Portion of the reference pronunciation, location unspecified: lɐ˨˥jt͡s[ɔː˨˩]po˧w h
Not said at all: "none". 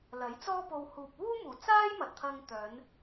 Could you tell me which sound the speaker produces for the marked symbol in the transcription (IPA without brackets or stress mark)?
ɔː˥